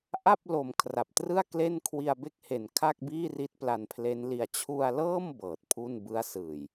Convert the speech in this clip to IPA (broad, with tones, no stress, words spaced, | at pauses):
ʔa˥˩p̚lo˨˩m kʰra˨˩p̚trɯ˥˩a̯kle˥˩n kʰwi˧a̯be˥˩k̚he˨˩n kʰa˥˩k̚biː˥˩ri˦˥t̚ pla˧npʰle˦˥nli˧a̯ t͡ɕʰu˧a̯lɤː˥˩m bɤː˨˩t̚pʰu˥˩n bɯ˦˥a̯sɯː˨˩j